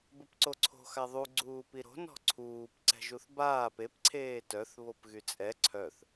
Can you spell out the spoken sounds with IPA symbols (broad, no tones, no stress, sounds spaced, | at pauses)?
b ə p ǀ o ǀʰ o̤ x a ðˤ u ɡ͡ǀ uː p i ɾ o̤ n ɔ̤ ǀʰ uː p ǀ ɛ̤ ʒ u θ b aː p e p ǀʰ eː t œ θ β o p ɣ y t͡sʼ ɛ ǀʰ œ θ